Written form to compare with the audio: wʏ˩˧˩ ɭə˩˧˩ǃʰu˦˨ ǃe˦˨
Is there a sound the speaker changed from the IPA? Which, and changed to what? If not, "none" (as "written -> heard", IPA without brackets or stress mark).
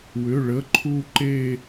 none